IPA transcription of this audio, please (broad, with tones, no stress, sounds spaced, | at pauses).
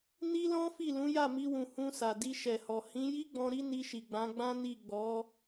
n i˦ l ɔ̃˦ f i˦˨ l ũ˨˦ j a˦˨ m i˧ w ũ˨ h ũ˧ s a˨ d i˧ ʃ ɛ˨ h ɔ˨ h ĩ˨˦ j i˦ ɡ͡b ɔ̃˧ ɾ i˦ n i˧ ʃ i˨ ɡ͡b ã˨˦ ɡ͡b ã˦ n i˦˨ ɡ͡b ɔ˨˦